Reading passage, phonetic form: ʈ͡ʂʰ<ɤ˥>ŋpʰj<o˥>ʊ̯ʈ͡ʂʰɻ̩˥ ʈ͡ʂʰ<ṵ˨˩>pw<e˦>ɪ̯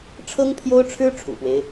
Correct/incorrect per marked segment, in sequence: correct, correct, correct, correct

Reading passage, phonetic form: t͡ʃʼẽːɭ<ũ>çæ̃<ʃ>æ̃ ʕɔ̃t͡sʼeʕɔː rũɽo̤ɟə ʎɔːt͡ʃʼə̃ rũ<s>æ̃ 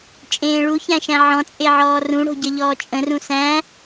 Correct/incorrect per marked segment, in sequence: incorrect: u, correct, correct

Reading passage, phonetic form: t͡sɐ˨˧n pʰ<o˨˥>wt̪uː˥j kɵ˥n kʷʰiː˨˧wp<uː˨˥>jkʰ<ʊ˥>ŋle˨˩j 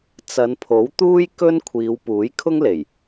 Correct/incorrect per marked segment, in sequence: correct, correct, correct

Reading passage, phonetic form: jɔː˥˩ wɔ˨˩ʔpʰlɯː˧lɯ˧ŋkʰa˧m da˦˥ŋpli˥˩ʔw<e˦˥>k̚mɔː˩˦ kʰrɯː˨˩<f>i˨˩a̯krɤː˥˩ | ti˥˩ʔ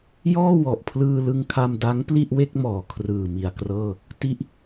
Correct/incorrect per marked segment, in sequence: incorrect: e˥˩, incorrect: m

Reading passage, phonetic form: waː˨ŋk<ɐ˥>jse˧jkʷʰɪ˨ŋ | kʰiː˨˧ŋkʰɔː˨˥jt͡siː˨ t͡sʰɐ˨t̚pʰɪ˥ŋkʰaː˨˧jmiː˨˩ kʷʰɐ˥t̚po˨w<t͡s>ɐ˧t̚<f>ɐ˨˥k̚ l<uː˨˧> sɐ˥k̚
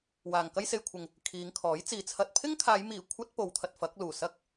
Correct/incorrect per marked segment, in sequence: correct, incorrect: t̪ʰ, correct, incorrect: uː˨˩

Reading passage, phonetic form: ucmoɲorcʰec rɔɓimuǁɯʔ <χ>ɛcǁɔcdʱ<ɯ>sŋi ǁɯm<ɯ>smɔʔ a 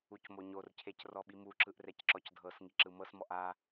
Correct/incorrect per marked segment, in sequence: incorrect: r, incorrect: ɤ, incorrect: ɤ

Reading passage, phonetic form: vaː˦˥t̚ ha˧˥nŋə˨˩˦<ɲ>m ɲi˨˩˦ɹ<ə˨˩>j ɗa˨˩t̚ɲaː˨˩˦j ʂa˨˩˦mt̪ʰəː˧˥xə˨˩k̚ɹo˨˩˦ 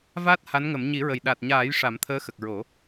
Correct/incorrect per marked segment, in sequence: incorrect: none, correct

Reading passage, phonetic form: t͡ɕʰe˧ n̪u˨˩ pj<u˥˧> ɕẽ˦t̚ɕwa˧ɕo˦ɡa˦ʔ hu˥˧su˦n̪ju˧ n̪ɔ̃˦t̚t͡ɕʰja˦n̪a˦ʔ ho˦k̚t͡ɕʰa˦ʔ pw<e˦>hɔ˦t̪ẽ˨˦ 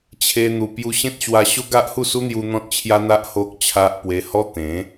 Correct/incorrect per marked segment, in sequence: incorrect: u˧, incorrect: e˧

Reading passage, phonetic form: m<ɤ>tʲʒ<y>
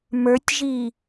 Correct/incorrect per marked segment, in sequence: incorrect: ə˞, incorrect: i

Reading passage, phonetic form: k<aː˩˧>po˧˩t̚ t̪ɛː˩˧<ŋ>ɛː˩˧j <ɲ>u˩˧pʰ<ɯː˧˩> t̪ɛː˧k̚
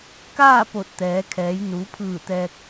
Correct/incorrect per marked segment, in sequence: incorrect: aː˥˨, incorrect: kʰ, incorrect: n, correct

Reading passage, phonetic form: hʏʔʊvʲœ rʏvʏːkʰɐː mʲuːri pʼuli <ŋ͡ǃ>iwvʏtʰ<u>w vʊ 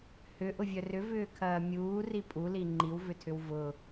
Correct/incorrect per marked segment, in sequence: correct, incorrect: ʏ

